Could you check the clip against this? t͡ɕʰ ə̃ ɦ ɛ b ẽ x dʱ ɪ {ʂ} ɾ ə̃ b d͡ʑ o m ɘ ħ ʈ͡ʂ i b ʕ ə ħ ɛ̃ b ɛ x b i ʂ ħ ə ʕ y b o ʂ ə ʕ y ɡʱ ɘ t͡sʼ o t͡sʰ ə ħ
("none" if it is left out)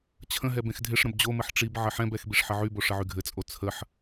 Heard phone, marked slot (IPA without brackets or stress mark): ʂ